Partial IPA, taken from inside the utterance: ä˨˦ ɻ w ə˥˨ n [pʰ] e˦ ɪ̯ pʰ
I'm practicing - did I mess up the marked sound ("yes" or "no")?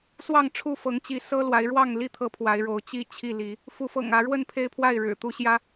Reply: no